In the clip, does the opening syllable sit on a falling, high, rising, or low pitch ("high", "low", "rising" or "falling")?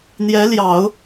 rising